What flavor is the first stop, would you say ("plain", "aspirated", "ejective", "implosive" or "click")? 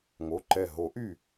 click